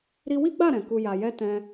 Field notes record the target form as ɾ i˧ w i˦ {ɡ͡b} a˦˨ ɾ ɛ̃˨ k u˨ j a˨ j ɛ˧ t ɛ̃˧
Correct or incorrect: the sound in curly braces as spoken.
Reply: correct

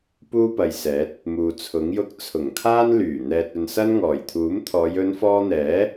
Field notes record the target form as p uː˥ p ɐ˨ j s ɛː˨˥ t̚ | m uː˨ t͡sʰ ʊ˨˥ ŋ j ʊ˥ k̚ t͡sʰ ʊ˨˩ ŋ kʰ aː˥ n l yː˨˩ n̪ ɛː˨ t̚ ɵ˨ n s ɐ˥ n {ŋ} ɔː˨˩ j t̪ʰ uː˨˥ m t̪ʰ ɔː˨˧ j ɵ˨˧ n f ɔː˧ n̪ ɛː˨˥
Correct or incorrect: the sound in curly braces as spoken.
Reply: correct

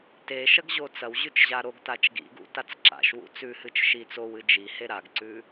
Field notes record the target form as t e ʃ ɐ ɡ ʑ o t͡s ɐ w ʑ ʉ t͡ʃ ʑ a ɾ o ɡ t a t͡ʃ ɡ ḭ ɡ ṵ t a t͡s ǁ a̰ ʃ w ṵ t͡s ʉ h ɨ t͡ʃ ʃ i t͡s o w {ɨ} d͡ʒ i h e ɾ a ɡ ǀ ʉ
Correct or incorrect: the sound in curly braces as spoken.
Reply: correct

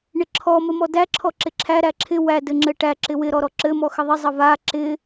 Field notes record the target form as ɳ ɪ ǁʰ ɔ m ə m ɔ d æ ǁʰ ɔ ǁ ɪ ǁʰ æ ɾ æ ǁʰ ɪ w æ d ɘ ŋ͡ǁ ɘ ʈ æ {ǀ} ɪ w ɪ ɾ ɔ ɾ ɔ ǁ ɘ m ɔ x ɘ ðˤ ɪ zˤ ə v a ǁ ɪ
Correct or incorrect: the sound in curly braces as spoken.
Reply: incorrect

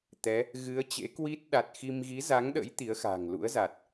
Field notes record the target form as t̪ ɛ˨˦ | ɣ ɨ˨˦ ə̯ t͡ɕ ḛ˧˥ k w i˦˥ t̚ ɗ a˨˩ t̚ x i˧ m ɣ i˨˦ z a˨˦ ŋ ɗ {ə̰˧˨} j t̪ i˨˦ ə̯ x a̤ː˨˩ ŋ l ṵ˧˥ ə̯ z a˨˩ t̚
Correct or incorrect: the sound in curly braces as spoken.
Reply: incorrect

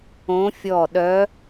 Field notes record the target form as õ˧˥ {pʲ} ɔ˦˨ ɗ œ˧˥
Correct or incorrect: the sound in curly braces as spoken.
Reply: incorrect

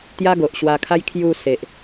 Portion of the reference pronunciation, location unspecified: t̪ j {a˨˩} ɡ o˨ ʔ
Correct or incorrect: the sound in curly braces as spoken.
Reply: incorrect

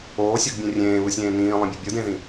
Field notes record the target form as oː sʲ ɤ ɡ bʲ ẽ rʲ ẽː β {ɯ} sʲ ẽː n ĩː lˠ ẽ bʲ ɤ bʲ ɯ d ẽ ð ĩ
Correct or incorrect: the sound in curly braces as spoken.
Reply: correct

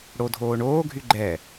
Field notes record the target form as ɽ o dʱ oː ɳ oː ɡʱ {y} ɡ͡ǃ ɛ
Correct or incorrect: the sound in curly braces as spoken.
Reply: correct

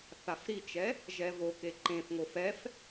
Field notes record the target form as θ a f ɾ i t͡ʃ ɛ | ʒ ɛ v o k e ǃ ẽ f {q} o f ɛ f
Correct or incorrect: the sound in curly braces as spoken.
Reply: incorrect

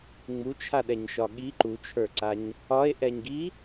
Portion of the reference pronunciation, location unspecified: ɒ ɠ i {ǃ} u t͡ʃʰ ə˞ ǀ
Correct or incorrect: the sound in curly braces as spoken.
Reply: correct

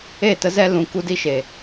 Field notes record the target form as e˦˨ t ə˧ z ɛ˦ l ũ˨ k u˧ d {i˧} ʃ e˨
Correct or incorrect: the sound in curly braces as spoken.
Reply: incorrect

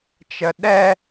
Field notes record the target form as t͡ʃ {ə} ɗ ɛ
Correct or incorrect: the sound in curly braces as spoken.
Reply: correct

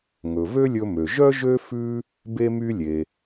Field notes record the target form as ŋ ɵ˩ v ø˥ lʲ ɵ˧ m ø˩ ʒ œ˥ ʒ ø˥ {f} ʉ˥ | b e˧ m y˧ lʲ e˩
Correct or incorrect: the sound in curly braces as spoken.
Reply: correct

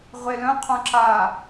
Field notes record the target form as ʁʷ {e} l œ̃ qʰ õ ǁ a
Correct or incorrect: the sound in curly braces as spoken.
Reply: correct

